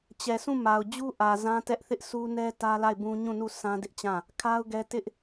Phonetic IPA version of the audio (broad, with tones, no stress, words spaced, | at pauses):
t͡ɕɛ˨sũ˦˨ ma˨ʊ̯d͡ʑu˦ ʔä˨ zã˦tɛ˦ʔθɪ˦ʔ sʰu˦nɛ˦ tä˦la˦˨ɪ̯bũ˦ ɲũ˦˨nu˦˨ sʰã˦dɪ˦ʔt͡ɕã˦˨ | kʰa˦ʊ̯ɡɛ˦ tɪ˦ʔ